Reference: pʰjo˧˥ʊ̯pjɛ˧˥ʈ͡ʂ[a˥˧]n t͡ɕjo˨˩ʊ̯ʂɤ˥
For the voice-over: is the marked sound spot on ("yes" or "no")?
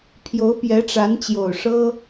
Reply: no